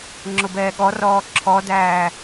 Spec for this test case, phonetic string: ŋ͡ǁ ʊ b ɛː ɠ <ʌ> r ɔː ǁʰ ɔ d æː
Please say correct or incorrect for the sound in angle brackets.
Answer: incorrect